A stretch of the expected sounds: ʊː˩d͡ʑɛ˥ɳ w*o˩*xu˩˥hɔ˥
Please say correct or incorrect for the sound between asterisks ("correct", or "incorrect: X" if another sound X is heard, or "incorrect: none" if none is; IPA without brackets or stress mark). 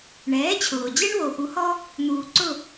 correct